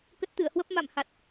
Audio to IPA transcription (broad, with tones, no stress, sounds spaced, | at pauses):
k ə˦˥ t̚ t̪ ɨ˧˩ ə̯ h w ə˦˥ p̚ m a̰˧˨ m h a˨˩ t̚